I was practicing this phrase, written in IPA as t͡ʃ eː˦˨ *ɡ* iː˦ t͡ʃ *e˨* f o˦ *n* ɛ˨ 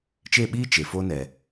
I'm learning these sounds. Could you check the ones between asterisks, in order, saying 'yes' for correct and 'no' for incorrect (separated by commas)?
no, yes, yes